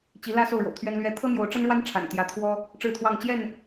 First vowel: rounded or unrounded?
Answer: unrounded